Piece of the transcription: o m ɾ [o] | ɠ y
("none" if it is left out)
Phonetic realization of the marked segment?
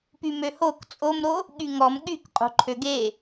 o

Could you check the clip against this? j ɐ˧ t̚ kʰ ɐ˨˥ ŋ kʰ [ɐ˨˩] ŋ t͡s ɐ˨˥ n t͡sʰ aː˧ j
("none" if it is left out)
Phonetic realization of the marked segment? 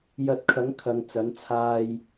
ɐ˨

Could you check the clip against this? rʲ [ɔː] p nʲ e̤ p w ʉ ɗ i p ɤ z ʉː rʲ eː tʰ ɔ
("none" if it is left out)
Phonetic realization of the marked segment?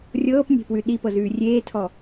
ɤː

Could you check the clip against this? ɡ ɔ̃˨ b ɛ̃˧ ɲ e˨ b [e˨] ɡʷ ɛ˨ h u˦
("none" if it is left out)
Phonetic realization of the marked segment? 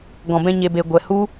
e˨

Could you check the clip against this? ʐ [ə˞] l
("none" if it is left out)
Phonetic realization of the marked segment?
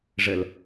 ə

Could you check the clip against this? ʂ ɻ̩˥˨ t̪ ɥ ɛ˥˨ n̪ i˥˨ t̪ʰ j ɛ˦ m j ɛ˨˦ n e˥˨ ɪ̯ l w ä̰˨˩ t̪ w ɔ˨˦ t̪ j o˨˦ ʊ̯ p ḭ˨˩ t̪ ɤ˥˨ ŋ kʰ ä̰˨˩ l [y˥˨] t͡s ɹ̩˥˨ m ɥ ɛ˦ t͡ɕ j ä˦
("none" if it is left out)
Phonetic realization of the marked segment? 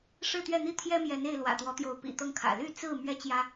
y˥˨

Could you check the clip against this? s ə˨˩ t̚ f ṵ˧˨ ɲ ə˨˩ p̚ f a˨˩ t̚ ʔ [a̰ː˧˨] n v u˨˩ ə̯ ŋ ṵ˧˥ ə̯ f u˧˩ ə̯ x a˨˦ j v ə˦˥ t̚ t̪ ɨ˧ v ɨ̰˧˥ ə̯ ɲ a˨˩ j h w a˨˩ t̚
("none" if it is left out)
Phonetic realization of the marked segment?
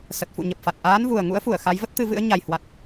aː˨˦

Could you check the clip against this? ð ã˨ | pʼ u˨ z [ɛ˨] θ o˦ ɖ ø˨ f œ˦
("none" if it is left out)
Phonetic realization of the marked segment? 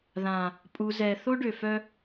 ɛ˨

